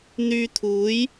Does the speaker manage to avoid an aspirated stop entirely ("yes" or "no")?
no